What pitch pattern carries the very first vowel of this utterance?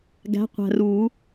rising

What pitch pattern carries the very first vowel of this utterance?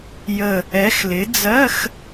falling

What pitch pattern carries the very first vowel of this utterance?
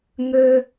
high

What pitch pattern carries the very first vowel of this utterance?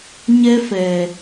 high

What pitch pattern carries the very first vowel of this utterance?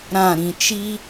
falling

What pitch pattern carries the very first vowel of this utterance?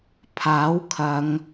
rising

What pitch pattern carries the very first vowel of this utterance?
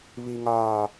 low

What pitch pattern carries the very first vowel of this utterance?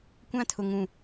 high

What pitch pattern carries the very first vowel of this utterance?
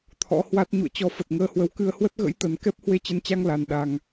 rising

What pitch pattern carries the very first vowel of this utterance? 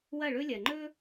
falling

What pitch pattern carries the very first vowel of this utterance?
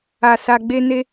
low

